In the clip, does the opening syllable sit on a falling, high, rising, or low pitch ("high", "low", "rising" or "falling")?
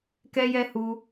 high